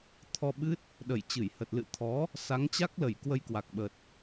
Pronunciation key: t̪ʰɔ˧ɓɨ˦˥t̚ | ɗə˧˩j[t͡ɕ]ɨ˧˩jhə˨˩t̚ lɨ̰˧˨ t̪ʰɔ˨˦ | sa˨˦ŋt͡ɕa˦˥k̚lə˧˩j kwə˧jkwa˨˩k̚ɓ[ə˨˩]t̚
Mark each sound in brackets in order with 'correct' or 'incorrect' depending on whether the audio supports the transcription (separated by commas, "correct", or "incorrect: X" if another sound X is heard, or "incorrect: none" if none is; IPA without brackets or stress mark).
correct, correct